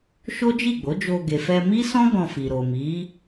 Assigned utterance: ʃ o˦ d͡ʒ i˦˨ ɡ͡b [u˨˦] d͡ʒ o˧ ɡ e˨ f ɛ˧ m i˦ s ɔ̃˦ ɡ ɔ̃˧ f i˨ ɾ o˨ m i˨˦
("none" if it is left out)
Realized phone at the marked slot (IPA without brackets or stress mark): o˨˦